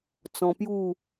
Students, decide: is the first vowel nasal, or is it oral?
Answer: nasal